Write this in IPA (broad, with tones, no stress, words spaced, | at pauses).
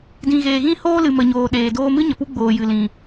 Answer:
dĩ˨ɣeː˨ɣĩ˦ hoː˦lɨ˨mə˨ ɲoː˨ɗeː˨doː˧mɨ˦ ɲə˨pu˦ɡ͡boː˨ jɨ˨lĩ˨